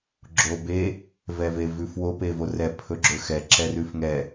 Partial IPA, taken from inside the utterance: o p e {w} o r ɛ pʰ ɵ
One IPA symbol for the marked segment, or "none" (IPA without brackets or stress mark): v